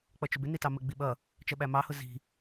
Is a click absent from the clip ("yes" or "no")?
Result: yes